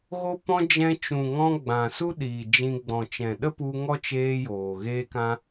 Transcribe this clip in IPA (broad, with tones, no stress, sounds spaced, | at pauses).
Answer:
ɣ o˧ p ɔ̃˧ d͡ʒ ɛ̃˧ t͡ʃ ũ˨ ŋ ɔ̃˧ ɡ͡b ã˨ s u˦ ɗ iː˨ d͡ʒ ĩ˧ ɡ͡b ɔ̃˨ t͡ʃ ɛ̃˨ ɗ ə˦ p u˧ ŋ ɔ˦ t͡ʃ eː˧ j oː˨ ɣ eː˧ k ã˧